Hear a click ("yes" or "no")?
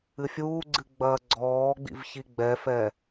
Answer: yes